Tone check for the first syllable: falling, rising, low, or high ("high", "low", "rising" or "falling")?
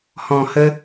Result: low